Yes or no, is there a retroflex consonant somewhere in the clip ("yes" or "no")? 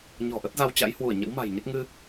no